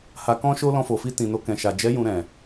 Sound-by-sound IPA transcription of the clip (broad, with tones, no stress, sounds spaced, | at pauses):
h a˧ k ɔ̃˦ ʃ o˦ l ɔ̃˧ f o˨ f i˧ t ĩ˨ n o˧ k ɛ̃˨ ʃ a˨ d͡ʒ ɛ˨˦ j ũ˧ ɾ ɛ̃˨